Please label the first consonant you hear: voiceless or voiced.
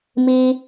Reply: voiced